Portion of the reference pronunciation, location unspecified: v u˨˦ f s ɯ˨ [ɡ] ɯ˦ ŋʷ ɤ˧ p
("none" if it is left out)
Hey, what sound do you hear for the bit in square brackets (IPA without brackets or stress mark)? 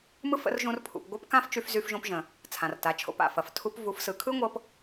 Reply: kʰ